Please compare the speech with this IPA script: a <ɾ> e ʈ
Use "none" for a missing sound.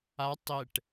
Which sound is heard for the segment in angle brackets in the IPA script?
tˤ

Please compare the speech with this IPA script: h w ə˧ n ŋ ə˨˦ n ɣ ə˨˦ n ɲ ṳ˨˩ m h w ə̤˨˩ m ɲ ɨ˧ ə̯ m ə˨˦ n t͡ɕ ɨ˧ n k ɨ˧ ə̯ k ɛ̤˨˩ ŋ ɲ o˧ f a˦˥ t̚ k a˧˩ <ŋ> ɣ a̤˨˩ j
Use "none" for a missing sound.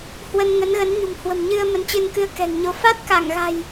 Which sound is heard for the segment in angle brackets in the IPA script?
ŋ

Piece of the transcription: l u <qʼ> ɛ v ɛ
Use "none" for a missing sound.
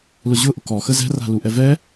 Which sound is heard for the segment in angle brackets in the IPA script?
ʔ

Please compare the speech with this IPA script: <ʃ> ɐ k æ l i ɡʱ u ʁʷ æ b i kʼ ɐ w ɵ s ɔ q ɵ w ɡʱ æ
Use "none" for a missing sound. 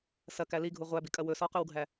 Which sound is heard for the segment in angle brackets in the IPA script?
s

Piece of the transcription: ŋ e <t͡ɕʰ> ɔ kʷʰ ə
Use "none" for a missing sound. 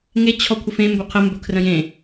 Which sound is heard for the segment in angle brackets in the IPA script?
t͡ɕʰ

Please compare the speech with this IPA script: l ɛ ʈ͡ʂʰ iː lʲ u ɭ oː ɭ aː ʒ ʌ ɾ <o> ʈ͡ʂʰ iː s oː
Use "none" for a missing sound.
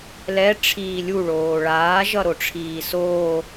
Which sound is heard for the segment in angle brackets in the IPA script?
o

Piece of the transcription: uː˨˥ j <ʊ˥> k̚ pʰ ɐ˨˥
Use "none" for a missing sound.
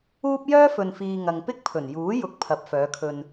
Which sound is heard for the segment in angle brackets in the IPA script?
ʊ˨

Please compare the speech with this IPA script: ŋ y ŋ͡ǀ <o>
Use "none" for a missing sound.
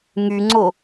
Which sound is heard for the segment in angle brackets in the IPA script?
o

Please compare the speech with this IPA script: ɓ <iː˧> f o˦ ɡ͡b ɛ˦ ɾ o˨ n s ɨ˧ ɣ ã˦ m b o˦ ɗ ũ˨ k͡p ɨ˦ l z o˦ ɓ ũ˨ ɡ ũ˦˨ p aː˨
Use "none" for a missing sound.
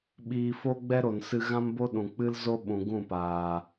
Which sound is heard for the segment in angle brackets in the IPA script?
iː˧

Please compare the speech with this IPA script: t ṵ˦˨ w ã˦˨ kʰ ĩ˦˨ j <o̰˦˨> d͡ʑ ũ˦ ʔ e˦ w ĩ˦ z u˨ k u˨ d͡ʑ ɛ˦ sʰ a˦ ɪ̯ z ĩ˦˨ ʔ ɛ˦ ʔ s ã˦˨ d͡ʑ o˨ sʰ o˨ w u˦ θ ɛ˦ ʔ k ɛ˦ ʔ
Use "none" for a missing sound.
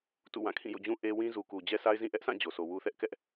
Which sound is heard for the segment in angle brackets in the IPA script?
o̰˦˨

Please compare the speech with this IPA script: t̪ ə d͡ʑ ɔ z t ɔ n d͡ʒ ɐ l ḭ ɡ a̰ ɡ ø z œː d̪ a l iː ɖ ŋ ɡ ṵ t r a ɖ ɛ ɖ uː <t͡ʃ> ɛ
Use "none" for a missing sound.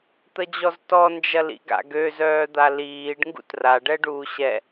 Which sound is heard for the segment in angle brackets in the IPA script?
ɕ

